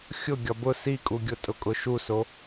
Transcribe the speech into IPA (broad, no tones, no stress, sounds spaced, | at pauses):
xʲ ʊ ɡʲ ɒ b ʊ s i kʼ u ɡʲ ʊ tʼ ʊ kʼ ʊ ʃ u s o